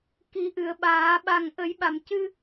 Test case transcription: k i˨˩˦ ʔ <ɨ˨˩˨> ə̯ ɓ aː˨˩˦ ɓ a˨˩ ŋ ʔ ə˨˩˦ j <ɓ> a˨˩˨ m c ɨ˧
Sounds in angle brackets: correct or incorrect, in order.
correct, correct

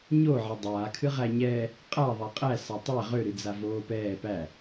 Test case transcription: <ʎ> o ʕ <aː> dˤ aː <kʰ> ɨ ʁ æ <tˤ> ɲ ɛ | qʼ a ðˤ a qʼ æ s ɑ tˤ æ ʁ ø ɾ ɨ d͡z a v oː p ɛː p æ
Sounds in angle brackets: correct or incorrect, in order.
incorrect: ɲ, incorrect: a, correct, incorrect: none

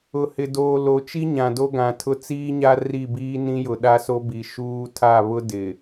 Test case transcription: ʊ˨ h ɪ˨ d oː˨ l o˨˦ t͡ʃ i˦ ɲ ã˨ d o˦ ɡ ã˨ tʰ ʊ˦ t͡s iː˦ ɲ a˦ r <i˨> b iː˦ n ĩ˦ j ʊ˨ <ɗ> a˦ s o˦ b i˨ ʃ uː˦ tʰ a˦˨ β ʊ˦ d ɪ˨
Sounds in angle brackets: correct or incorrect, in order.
incorrect: i˦˨, correct

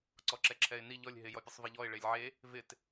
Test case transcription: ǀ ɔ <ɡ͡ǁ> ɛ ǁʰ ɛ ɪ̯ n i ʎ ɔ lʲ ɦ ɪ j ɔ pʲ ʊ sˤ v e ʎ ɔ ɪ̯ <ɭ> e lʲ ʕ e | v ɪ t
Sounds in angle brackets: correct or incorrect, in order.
incorrect: ǁ, correct

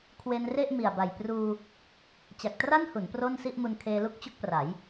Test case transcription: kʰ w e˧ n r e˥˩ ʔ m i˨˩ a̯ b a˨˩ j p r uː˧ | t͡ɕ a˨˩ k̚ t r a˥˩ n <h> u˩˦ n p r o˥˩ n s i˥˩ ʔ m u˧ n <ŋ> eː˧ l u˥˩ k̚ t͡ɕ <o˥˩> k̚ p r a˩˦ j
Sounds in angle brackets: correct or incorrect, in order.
correct, incorrect: kʰ, correct

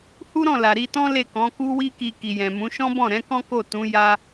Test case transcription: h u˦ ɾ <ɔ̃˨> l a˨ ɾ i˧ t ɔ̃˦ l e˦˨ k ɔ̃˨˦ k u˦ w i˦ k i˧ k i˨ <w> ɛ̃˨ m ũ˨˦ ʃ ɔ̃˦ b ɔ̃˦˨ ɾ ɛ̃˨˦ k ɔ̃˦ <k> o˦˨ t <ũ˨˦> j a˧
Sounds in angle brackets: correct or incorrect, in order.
incorrect: ɔ̃˦˨, incorrect: j, correct, correct

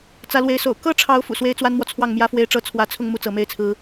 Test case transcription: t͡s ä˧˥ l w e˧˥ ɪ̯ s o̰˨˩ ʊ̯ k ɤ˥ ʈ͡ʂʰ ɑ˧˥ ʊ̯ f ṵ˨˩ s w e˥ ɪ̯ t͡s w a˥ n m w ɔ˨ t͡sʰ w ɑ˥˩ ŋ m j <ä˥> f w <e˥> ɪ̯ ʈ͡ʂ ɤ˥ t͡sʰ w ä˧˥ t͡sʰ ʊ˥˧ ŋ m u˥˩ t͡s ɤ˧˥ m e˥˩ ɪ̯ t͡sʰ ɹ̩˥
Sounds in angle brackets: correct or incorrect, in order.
correct, correct

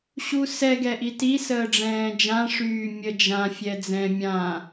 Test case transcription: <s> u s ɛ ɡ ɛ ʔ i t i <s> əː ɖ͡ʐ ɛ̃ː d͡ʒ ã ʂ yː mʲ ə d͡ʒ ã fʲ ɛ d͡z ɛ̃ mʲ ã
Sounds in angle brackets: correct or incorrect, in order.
incorrect: ɕ, correct

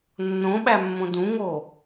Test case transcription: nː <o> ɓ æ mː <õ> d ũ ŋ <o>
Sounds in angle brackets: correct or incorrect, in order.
incorrect: õ, correct, correct

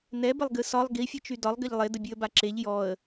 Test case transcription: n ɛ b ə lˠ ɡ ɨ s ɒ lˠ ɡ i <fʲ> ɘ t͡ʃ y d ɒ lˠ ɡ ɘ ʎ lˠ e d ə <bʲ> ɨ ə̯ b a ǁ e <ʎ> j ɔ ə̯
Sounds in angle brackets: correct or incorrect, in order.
correct, correct, correct

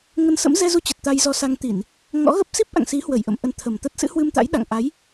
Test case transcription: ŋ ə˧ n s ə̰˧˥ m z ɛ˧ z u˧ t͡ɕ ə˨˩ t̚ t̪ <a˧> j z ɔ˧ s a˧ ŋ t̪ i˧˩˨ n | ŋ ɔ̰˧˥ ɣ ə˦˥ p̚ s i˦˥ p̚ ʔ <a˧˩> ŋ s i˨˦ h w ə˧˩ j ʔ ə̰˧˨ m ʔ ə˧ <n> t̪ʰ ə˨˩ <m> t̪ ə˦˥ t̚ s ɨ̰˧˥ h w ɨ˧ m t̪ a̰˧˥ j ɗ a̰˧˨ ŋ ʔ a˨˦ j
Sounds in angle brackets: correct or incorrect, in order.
correct, incorrect: a̰˧˨, correct, correct

